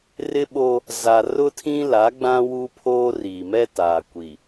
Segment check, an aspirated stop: present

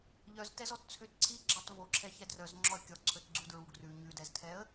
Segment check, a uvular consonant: absent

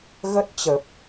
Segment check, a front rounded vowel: absent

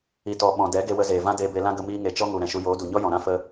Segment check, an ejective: absent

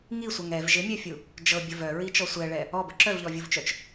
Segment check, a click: present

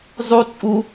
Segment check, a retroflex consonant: absent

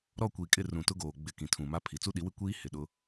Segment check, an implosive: present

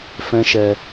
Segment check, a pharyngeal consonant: absent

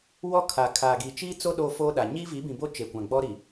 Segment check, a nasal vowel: present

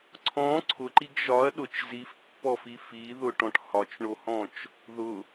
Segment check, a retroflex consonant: present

